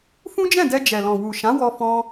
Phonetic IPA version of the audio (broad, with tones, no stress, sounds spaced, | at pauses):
f ũ˦ d͡ʒ ɛ̃˦˨ d ɛ˧ d͡ʒ ɛ˨ l ɔ̃˨ w u˨ ʃ ã˨˦ w ɔ˧ f ɔ̃˧